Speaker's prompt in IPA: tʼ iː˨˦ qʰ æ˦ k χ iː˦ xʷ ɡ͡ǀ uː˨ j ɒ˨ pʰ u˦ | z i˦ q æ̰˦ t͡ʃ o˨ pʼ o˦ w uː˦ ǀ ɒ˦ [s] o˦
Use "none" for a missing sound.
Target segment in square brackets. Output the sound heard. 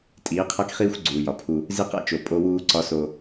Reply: s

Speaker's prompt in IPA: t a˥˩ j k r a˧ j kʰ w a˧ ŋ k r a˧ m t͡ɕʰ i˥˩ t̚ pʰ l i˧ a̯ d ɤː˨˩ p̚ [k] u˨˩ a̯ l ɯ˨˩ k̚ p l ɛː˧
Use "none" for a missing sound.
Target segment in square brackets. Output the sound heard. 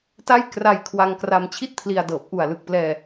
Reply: ʔ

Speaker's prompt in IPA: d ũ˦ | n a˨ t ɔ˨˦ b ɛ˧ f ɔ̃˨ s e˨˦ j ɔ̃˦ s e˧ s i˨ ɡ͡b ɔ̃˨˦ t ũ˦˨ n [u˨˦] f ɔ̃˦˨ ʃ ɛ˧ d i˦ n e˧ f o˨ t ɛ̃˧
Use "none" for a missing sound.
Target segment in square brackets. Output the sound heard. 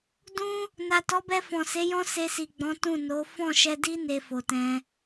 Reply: o˨˦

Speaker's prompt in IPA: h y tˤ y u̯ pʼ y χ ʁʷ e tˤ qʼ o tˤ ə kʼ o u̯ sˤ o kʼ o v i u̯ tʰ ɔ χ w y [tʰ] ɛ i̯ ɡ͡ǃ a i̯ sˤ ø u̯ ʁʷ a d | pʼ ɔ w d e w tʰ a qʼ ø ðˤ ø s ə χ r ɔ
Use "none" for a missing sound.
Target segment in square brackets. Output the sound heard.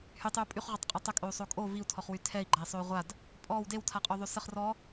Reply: tʰ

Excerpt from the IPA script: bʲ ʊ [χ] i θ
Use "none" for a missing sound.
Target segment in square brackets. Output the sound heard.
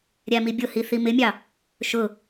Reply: h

